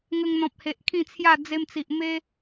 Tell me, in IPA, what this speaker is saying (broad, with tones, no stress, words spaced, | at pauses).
ŋə˧ŋn̪ɔ̃˨p̚he˨ʔ kʰĩ˥˧t͡sʰja˥˧ d͡ze˧mt͡si˨ʔ me˦